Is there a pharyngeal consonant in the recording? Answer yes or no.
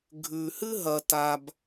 no